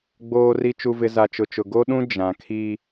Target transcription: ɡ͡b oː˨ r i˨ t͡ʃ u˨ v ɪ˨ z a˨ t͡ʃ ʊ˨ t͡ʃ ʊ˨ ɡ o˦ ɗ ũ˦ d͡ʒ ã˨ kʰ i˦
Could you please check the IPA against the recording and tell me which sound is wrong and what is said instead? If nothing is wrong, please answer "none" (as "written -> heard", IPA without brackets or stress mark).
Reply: none